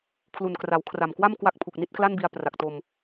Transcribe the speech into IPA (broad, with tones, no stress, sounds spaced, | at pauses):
kʰ l u˨˩ n k r a˩˦ w kʰ r a˨˩ m k w a˥˩ m k w a˥˩ k̚ pʰ u˨˩ k̚ n i˦˥ t̚ k l a˥˩ n b i˧ a̯ p r a˨˩ k̚ t o˧ m